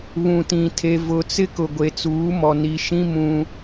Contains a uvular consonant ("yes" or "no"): no